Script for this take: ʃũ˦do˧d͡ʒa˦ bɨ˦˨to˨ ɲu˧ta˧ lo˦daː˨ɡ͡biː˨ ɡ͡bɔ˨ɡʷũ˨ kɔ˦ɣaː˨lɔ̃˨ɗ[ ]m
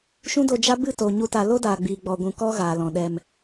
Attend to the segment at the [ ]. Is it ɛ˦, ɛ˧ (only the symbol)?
ɛ˧